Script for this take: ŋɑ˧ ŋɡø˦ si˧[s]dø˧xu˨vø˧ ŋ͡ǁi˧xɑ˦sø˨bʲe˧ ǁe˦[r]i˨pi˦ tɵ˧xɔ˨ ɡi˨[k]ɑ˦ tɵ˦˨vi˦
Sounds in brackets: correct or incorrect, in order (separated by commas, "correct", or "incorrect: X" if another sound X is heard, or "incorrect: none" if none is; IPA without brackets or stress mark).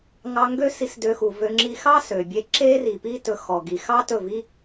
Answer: correct, correct, incorrect: x